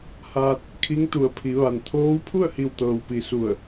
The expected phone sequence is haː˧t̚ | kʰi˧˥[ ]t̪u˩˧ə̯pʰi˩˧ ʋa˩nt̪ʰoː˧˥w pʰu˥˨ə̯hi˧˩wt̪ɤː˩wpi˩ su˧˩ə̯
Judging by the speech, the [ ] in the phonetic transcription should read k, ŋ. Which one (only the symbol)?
ŋ